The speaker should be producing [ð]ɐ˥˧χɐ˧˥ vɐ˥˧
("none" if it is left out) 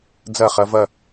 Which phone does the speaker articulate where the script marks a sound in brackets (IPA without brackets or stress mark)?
d͡z